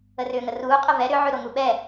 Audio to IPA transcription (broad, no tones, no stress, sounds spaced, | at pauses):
ə r ʏː ŋ ə r uː qʼ ə v ɛ ɾ ʏ ʕ ʉ ɾ o ŋ u ɓ ɛ